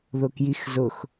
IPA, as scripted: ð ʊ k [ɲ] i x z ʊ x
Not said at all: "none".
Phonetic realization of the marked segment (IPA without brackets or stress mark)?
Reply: j